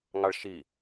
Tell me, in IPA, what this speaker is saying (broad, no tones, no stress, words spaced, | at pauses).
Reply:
ŋɑɭʃi